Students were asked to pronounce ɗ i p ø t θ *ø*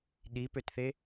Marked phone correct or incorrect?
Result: incorrect